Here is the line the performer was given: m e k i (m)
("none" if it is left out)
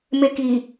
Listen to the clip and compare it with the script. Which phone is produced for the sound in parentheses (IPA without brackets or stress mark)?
none